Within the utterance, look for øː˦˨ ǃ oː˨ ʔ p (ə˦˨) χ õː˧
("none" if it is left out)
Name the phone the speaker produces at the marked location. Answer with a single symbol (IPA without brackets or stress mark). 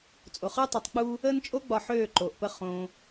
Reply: ə˦˨